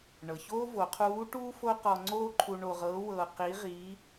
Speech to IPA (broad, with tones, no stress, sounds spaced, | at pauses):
ɳ ɤ˩ ç oː˥ v o˩˧ qʰ uː˧˥ ʈ uː˥ f o˥ q ɔ˧ ŋ͡ǀ oː˥ ǃʰ u˧ ɳ o˧ ʁ ɤː˧˥ w ɤː˧ q i˧˥ ʁ iː˧˥